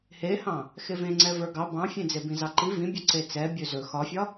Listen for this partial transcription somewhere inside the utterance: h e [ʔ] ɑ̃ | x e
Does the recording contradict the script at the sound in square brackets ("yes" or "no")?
yes